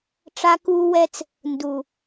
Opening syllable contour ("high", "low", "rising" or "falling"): high